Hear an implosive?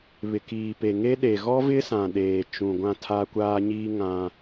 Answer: yes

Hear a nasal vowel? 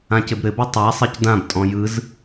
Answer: yes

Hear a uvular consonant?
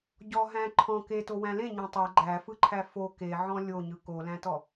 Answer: no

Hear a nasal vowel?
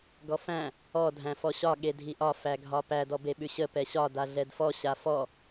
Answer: yes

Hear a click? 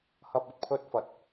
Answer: no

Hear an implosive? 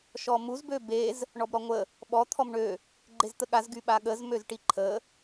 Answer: yes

